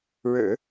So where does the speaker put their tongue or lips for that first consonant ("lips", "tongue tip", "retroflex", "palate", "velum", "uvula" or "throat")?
retroflex